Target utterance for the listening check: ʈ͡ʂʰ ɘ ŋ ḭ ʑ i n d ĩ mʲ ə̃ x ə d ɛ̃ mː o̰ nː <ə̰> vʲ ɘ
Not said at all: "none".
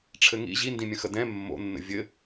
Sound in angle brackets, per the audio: ə̰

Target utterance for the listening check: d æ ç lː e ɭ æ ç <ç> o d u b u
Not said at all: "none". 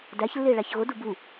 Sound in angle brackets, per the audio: ɣ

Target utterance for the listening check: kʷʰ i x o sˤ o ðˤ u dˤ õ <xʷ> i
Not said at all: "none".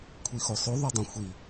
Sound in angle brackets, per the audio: xʷ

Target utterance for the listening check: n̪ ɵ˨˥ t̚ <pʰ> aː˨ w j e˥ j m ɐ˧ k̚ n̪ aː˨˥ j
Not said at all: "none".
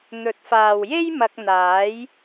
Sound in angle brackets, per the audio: f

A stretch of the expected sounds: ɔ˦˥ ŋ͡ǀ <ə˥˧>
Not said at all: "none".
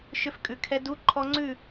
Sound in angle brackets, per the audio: ʉ˥˧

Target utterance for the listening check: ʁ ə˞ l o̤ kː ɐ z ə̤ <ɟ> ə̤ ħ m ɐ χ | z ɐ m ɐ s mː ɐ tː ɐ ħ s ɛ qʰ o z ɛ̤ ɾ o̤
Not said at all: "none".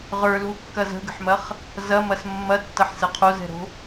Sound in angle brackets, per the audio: ɡ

